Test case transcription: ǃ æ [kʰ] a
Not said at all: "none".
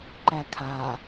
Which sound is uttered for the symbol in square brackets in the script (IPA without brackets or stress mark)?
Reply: kʰ